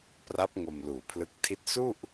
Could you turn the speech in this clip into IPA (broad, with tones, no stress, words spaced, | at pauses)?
pra˦˥p̚ ŋo˧mluː˨˩pʰlɯ˦˥k̚ tʰi˥˩t̚ su˥˩ʔ